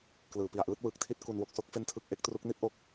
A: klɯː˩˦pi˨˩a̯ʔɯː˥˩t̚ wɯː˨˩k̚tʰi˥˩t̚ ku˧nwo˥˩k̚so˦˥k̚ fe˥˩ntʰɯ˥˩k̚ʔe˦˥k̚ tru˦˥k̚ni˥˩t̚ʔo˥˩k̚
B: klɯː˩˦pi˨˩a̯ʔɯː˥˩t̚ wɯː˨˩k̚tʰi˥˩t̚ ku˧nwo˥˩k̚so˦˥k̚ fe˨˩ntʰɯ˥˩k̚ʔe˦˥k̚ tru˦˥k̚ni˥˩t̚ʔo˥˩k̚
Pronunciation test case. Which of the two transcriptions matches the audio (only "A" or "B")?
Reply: A